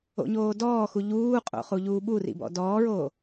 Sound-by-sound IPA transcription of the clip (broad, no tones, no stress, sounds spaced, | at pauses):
o̰ ɲ oː d ɔː x u ʎ uː qʼ o̰ χ u ʎ uː ɓ u r ḭ b ɔ̰ d ɔː ɹ oː